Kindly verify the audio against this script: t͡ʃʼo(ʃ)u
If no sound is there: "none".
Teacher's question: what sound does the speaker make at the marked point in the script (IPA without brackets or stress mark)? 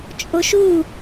ʃ